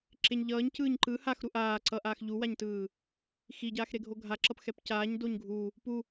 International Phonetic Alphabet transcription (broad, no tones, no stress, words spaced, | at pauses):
ǁeɲʎʌːɲ cɯːɲǃɯ haxɾu ʔaː ǀʌʔaːx ʎuwaɲtɯː | xiɟaːx ɾeɡʱoɡʱaǁʌp xɛpcaːɲ doɲɡʱu | pu